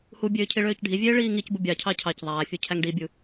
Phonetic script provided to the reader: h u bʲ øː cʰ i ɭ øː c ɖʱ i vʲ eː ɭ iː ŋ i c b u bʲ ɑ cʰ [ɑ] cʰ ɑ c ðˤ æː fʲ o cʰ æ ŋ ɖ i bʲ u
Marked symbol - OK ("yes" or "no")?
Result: yes